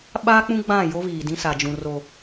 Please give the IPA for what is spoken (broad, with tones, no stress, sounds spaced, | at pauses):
ɓ aː˦ k͡p ũ˦ ɡ͡b ã˦˨ j o˦ β iː˨ d ĩ˦ s a˨ d͡ʒ ũ˨ r o˨